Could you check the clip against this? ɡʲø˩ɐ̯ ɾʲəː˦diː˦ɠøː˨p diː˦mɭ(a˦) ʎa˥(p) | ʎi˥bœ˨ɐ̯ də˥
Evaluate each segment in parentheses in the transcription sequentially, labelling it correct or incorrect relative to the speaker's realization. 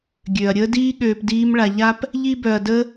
incorrect, correct

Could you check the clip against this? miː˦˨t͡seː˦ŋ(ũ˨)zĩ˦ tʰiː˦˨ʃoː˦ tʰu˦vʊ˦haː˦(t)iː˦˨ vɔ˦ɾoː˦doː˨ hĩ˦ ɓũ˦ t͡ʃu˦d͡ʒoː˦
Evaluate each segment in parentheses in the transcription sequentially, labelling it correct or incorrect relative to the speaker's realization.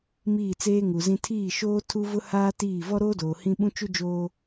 incorrect, correct

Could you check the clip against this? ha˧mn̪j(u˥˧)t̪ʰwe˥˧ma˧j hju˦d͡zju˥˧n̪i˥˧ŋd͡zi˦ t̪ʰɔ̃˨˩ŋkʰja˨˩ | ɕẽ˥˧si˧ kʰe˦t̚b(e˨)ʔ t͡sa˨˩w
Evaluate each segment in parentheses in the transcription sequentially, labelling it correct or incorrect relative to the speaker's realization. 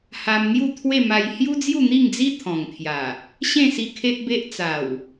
correct, incorrect

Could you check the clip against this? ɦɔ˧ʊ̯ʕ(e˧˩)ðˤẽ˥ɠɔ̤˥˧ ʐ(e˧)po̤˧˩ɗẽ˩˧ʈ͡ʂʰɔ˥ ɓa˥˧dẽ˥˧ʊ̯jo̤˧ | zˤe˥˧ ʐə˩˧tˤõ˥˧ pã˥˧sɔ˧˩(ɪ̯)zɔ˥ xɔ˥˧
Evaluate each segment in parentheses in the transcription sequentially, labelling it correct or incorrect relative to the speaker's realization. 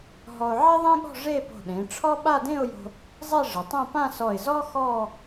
incorrect, incorrect, correct

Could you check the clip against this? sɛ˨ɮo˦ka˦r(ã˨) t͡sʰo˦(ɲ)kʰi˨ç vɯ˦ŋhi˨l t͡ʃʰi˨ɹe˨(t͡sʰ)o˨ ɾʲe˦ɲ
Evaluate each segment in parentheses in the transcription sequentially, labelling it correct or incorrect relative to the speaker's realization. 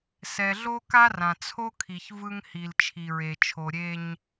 correct, incorrect, incorrect

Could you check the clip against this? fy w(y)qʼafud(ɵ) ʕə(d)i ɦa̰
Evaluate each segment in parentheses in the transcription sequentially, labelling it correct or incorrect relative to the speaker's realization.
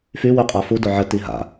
correct, incorrect, incorrect

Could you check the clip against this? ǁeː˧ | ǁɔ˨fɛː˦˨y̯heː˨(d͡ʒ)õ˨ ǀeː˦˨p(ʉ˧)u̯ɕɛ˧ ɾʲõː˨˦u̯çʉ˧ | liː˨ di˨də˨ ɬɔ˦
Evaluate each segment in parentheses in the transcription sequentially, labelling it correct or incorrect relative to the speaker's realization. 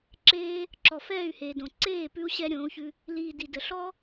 incorrect, correct

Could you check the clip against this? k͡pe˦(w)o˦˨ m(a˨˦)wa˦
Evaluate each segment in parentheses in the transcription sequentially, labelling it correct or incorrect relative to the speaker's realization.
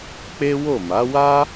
correct, correct

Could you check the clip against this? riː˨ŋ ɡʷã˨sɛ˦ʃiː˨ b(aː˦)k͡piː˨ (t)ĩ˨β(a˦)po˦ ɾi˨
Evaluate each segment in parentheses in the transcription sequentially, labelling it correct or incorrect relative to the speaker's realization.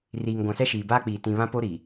correct, correct, incorrect

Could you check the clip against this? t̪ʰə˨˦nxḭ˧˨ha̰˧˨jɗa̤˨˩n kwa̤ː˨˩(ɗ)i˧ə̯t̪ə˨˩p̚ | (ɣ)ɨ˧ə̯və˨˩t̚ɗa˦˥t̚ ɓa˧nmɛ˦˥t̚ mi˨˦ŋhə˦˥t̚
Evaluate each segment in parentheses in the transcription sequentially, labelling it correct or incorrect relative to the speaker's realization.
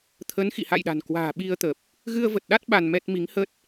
incorrect, correct

